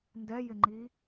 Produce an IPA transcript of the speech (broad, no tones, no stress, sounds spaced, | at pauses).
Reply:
n d ɛ j ɪ ŋ͡ǃ i